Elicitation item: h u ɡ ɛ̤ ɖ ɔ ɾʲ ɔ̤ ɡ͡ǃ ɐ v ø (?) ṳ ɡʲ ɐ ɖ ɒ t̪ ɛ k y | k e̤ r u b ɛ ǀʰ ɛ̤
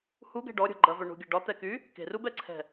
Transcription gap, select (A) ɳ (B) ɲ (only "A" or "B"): A